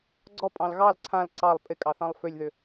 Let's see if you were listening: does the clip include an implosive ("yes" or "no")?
no